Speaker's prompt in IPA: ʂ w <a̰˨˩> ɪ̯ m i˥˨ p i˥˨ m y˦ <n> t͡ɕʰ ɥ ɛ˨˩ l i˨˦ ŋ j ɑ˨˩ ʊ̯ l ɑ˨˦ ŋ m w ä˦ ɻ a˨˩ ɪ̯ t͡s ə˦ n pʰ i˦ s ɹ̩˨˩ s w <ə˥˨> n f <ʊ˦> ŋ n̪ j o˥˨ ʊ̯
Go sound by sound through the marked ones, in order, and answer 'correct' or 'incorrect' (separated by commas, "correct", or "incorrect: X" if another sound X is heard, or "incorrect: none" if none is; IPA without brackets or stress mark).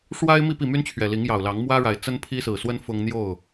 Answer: incorrect: a˦, correct, incorrect: ə˦, correct